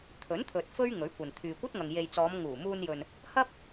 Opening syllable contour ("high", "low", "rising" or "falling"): rising